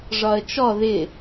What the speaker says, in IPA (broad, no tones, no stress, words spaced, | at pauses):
ʐɒə̯t͡ʃɔ ðɪ